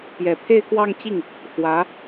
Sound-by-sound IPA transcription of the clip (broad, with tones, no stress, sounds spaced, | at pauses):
p j ɛ˨˩ pʰ e˥˧ ɪ̯ k w ɑ˥˧ ŋ t͡ɕ i˥˩ ŋ | x w ä˧˥